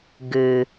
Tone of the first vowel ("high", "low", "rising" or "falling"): low